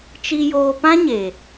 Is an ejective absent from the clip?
yes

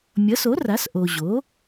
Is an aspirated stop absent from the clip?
yes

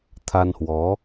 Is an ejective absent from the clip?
yes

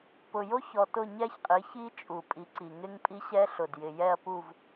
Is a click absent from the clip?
no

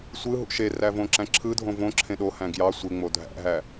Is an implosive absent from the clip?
no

